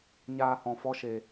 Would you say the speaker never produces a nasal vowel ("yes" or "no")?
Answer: no